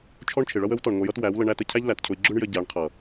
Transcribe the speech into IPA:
t͡ʃʰ ɔ˦ ɳ t͡ʃʰ ɪ˨ ɭ ʌ˦ w ə˨˦ w t ɔ˨ ɳ ŋʷ ʌ˧ j ʌ˦ t w æ˨˦ w l ə˧ ɳ æ˦ t ə˧ cʰ æ˦ ʎ l æ˨ t cʰ ʊ˧ i̯ ɡ͡ǁ ʊ˦ ɳ j ə˧ ɟ æ˨˦ ɳ qʰ ʌ˨

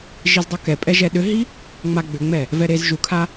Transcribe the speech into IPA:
ʒ i z dˤ u k ɛ pʼ ɛ ʒ ɛ ɗ ʏ ɦ i | ŋ͡m a ɡ͡b ʏ ŋ͡m ɛ | v ɛ ɾ e z ʒ u kʰ a

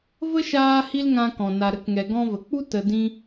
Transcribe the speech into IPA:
v ə˦ ʃ aː˦ h i˦ l ŋ ã˧ k ɔ̃˨ n a˨ ɾ ə˨˦ k ŋ ɛ˨ ɡ ɔ̃˧ v ə˨ k͡p u˦ t ə˧ d ĩ˦

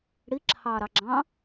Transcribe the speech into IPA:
ɽ i ǁʰ ɑː ɾ ɑ ɡ͡ǁ ɑ̃ː

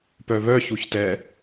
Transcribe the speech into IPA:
p œ β œ ç u ç t ɛ

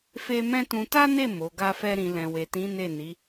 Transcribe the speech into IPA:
f e˦ m ɛ̃˦ t ũ˧ t a˦ n e˦˨ m o˨˦ ɡ a˦ f ɛ˦ ɾ ĩ˧ l ɛ̃˨ w e˨ t ĩ˨˦ n e˦˨ n i˨˦

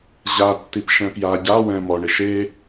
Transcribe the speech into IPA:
ʑ a tː i p ʃ ɛ̃ p j a ɟ a w ɛ̃ m ɔ ɳ ɪ ʃ e

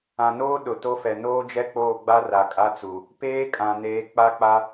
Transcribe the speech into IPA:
ã˨ n oː˦ ɗ ʊ˨ t o˦ f ɛ˨ n oː˦ d͡ʒ ɛ˦ k͡p oː˦˨ ɡ͡b a˦ r a˨ kʼ a˦ t͡s u˨ | p eː˦ kʼ ã˨ n eː˨˦ k͡p a˦ k͡p a˦

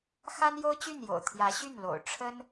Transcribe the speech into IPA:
x a˥ n j o˥ ʊ̯ t͡ɕ y˥˩ n j o̰˨˩ ʊ̯ t̪ʰ j ä˧˥ ɕ y˥˩ n l o̰˨˩ ʊ̯ ʈ͡ʂʰ ə˥ n

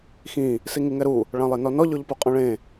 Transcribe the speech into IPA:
x ĩ | s i ŋ i ŋ ɛ ɾ u | ɭ ã lˠ e n ɔ n ɔ ʎ o ʎ p u qʼ ɔ̃ ɭ ẽ

